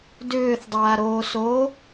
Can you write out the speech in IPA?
dʏːθdˤaːɾoːso

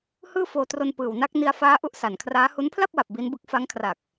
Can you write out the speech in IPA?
hɯː˥˩foː˧tro˧n pɯː˨˩wna˦˥k̚ ni˧a̯faː˦˥ ʔu˦˥ʔsa˨˩nkʰraː˦˥hu˦˥n pʰla˥˩p̚wa˨˩p̚ bi˦˥nbɯ˦˥k̚ fa˦˥ŋ kʰra˨˩k̚

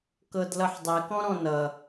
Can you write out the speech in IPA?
kɤdlʌħdˤɘ kɔ̃ɾɔ̃nʌ

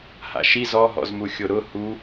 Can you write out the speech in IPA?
ha̰ʃi zɔɦɔ̰zmu xʲoɾʊ hu

